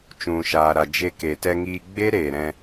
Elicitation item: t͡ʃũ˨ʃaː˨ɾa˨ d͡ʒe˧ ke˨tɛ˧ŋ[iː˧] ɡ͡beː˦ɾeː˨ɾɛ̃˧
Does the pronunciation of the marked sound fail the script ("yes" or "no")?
no